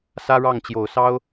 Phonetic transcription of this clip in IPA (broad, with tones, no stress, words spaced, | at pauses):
sä˥ɻɑ˥˩ŋt͡ɕjo˨˩ʊ̯ sɑ˥ʊ̯